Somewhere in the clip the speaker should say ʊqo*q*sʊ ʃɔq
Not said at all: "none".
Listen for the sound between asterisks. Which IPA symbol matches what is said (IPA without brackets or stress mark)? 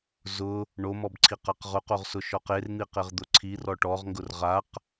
ʁ